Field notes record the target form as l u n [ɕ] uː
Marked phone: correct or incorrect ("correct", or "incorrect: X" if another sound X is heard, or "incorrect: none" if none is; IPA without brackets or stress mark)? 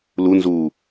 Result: incorrect: z